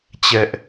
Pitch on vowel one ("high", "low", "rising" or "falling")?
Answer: high